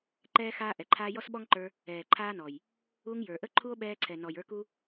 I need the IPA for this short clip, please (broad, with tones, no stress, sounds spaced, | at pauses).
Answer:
ǃ ɛː˦ x aː˦ ʔ ɛ˨ ǃʰ aː˦ j ɔ˦ s ɓ ɔ˦ ŋ ǃ ə˞˧ | ɛː˨ ǃʰ aː˦ n ɔ˨ j | u˧ ŋ j ə˞˨ ʔ ə˦ ǃʰ u˦ o̯ ɓ ɛː˧ ǀʰ ɛ˨ n ɔ˨ j ə˞˧ k u˦